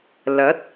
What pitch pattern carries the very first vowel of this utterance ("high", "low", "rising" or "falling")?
rising